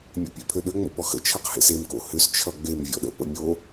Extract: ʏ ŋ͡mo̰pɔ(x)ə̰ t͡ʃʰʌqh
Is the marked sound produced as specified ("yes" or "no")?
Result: yes